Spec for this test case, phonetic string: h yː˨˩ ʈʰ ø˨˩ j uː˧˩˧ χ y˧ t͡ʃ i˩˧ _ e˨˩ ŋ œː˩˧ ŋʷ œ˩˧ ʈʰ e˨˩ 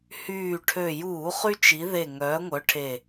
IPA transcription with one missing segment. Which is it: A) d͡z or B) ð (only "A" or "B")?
B